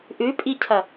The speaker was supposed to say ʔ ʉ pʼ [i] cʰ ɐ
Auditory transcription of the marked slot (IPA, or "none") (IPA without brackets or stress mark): i